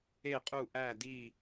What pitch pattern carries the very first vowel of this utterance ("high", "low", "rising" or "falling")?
falling